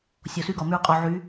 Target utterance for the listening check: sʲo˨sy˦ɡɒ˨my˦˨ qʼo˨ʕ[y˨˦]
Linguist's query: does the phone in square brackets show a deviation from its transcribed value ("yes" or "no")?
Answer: no